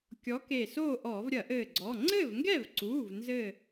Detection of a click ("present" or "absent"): present